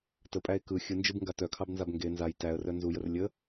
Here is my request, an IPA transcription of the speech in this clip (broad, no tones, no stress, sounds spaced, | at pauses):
t ə pʼ æ ɪ̯ k ɯ xʲ ɯ n d͡ʒ ɯ b ŋ ɡ a t œ kʰ ɑ b n z a b ŋ ɡ e n z a j t æ ə̯ r œ n z u j ə r lʲ ə